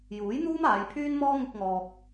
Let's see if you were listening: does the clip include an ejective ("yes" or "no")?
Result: no